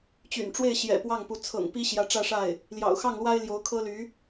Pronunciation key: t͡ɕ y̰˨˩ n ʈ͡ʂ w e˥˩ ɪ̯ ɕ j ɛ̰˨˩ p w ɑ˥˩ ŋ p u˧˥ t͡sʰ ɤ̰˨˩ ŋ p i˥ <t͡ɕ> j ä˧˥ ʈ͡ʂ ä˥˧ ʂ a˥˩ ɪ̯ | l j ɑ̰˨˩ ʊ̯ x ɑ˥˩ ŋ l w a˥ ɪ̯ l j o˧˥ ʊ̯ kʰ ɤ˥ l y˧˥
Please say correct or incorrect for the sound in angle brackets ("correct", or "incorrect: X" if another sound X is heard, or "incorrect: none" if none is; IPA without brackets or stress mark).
incorrect: ɕ